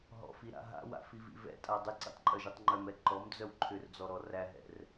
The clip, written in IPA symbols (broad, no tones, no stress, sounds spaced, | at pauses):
ɦ ɔ̰ f i ɾ a̰ ɦ a̰ w a̰ f i v ḭ v ɛ̰ tʼ a dˤ ɪ ǀ ḭ tˤ ǃʼ œ ʒ i tˤ ŋ͡ǃ œ m ɛ ǃ ɔ m d͡z œ w ǃʰ ʏ r d͡z ɔ ɾ ɔ r æ ɦ ɛ̰ r